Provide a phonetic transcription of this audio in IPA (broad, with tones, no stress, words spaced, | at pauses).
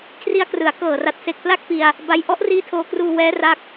kʰri˦˥a̯krɯ˩˦a̯ kɤː˨˩ra˨˩t̚ se˨˩k̚pla˥˩k̚pi˧a̯ | ba˦˥j ʔɔ˦˥ʔriː˦˥tʰoː˧kruː˧ wɛː˦˥ra˦˥k̚